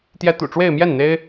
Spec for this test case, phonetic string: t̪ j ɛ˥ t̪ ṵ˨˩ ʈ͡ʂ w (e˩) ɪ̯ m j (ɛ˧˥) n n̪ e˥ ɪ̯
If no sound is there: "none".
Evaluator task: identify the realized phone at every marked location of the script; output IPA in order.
e˥˧, ɛ˥˩

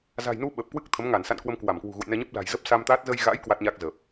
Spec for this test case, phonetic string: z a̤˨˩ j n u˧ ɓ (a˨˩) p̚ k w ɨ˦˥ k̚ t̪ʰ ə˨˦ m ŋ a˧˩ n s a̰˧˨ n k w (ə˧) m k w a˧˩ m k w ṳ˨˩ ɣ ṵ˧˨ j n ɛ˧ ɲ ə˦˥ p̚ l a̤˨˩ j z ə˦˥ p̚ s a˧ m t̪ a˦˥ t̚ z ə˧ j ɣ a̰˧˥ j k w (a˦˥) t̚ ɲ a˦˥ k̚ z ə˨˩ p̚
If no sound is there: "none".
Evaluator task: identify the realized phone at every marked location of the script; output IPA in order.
ə˨˩, ə˧, a˦˥

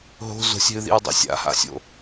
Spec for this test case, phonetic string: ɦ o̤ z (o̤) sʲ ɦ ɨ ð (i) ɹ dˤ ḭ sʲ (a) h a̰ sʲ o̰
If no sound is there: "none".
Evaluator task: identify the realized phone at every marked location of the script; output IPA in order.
o̤, ḭ, a̰

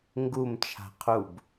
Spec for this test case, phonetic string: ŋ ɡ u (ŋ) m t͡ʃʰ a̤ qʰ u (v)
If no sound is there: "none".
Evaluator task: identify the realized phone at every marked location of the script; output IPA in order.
none, b

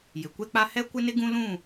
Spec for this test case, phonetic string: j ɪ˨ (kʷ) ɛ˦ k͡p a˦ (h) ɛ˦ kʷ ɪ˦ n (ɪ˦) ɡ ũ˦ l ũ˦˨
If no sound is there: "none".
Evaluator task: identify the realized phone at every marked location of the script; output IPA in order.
kʷ, h, ɪ˦

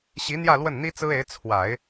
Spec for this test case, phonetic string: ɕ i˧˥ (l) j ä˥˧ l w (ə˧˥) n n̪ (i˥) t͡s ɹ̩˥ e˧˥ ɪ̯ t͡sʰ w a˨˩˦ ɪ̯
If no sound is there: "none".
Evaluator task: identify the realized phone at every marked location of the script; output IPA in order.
n̪, ə˥˩, i˥

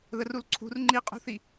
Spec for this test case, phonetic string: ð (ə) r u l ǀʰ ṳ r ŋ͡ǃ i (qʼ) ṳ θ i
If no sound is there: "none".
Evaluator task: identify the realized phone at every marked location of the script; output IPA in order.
ə, qʼ

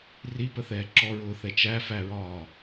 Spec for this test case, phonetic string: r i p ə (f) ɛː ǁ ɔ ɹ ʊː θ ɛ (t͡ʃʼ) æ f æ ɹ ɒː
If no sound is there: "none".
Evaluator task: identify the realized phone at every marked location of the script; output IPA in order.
θ, t͡ʃ

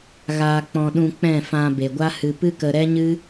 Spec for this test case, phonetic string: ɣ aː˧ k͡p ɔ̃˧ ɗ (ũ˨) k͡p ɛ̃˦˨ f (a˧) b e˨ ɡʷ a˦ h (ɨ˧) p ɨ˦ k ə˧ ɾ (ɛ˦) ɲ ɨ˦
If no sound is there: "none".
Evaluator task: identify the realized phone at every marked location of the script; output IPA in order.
ũ˧, ã˧, ɨ˧, ɛ˦

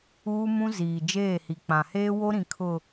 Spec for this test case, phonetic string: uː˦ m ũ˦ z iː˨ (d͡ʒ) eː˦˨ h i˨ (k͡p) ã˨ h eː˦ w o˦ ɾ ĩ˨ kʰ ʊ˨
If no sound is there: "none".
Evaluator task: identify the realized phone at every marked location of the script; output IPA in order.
d͡ʒ, k͡p

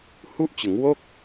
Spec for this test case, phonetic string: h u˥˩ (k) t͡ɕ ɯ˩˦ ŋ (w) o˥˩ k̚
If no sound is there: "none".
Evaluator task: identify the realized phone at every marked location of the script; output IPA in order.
ʔ, w

